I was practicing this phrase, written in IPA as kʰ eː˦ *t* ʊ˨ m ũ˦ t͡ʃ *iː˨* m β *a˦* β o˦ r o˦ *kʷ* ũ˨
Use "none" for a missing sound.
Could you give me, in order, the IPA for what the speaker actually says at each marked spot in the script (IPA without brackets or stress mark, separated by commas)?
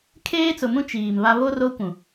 t͡s, iː˨, a˦, kʷ